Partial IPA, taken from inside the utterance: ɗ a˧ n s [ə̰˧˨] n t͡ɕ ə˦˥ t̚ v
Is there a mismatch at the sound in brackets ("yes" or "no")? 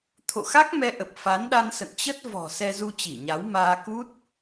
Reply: no